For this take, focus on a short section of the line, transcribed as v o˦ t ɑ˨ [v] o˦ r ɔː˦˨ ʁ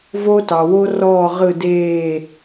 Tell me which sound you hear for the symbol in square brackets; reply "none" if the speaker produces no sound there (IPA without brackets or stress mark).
w